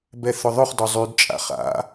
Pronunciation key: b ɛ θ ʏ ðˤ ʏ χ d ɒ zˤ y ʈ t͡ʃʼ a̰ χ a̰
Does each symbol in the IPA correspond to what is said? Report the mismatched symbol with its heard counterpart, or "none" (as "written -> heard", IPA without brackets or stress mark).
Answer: ʈ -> d